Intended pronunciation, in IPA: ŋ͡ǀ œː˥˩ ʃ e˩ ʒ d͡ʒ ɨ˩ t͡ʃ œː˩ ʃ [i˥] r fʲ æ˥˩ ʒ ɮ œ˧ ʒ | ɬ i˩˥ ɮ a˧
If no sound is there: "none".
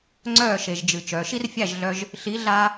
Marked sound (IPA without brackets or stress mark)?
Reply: i˥